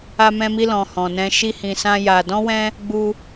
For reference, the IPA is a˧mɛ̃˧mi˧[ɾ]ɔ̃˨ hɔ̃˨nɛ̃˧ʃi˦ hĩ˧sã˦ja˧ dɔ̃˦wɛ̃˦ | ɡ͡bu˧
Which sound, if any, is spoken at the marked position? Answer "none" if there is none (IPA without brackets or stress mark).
l